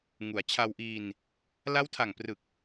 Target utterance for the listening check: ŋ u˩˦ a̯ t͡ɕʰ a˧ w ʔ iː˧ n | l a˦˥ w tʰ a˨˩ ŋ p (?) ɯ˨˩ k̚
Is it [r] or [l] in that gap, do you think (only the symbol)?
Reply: r